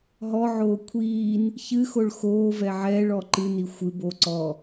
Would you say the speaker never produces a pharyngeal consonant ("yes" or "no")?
no